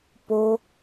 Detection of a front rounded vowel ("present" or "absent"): absent